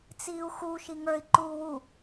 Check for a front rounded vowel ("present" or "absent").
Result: absent